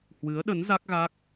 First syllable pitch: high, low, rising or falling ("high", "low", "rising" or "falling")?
rising